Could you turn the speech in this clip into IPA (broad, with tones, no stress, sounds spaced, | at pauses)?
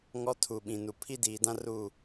ŋ ɔ˦ tʰ u˨ ɓ ĩ˨ n u˨ pʰ i˦ d iː˨ d ã˦ r u˦˨